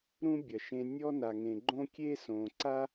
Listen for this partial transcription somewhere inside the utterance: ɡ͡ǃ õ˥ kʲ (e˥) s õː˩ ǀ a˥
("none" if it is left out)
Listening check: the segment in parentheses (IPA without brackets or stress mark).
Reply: e˥